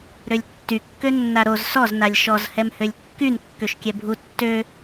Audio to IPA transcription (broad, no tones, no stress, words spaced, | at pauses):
ɾølʲtːy kːønːaɾoz sɔz nalʲʃɔz hɛmhølʲkːyn kːøʃkʲɛbʱu tːø